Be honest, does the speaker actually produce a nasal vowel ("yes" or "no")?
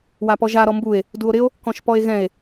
yes